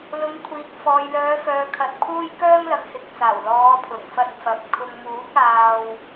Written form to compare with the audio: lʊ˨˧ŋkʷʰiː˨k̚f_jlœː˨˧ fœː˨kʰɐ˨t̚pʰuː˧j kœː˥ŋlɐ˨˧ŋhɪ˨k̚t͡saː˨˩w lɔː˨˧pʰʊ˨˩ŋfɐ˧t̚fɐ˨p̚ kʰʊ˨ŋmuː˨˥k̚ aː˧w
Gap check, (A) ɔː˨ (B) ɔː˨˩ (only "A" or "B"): A